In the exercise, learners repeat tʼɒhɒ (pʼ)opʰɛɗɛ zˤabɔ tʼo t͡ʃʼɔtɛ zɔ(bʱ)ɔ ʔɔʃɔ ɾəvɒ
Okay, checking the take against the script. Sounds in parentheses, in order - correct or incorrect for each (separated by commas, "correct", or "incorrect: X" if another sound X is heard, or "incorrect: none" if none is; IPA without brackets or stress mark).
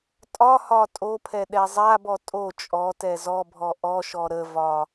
incorrect: tʼ, correct